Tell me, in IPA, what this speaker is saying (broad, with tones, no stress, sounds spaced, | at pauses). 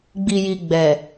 ɡ͡b i˨ j i˨ ɡ͡b ɛ˨